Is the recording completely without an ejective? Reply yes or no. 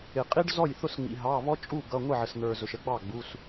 no